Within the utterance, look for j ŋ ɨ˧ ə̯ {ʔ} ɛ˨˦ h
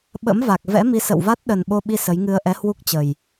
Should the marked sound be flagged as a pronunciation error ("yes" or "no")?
no